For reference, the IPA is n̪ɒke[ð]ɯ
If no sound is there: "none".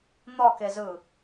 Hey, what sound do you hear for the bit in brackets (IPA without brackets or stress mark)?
z